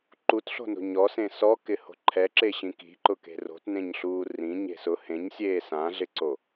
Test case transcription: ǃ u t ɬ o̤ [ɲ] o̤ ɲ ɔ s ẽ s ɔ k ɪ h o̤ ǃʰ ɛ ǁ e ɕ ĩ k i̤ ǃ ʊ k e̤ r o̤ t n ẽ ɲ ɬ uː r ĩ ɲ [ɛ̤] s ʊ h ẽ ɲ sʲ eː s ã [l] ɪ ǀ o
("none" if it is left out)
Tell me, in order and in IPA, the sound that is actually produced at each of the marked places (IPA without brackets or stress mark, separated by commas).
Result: n, e̤, ɮ